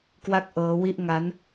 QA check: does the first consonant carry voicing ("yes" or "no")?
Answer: no